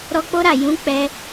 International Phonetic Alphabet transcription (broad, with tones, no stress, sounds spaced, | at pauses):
ɾ ɔ˧ k͡p o˦ ɾ a˦˨ j ũ˨˦ k͡p ɛ˧